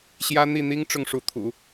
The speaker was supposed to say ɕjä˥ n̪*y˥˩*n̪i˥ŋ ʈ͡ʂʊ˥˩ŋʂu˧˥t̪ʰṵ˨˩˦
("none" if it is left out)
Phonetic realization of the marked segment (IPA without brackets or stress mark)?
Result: i˥˩